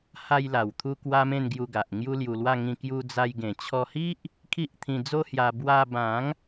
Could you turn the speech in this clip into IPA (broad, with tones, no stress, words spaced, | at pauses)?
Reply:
ha˧jla˨˩wt̪ʰu˧ kwa˦mẽ˥˧nɡju˧ɡa˨ʔ ŋju˦lju˧lwa˥˧ ŋĩ˧kju˧d͡za˧j ɡẽ˨˩t͡ɕʰɔ˧hi˦ʔ | kʰi˦ʔt̪ʰĩ˧d͡zo˦hja˧ bwa˧bã˨˦ŋ